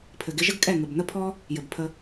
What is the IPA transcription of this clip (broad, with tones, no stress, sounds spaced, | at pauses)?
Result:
pʰ ɘ˨ ɡ ɪ˧ ʒ ə˦ ɡ kʼ ɛ˦˨ ŋ ɘ˨ b n̪ ə˦ pʰ ɔ˦ | j ɘ˨ b pʰ ə˧